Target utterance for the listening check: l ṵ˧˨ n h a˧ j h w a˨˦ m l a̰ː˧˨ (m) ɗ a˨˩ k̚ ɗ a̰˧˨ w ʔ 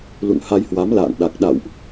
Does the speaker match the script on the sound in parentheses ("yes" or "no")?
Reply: no